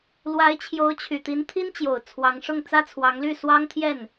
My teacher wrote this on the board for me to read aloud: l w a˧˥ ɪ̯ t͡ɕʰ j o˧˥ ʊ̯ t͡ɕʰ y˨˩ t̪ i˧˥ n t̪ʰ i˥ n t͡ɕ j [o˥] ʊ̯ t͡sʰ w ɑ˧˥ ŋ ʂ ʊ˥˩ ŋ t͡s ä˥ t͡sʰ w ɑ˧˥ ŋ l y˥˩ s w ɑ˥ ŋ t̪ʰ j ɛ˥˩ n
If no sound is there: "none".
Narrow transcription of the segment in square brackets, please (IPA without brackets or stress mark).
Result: o˨˩